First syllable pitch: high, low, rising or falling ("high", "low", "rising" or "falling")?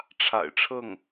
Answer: low